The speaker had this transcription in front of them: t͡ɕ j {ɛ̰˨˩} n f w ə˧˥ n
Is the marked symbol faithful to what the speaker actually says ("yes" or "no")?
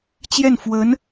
no